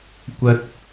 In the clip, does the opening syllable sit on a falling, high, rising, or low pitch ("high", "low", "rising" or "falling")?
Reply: high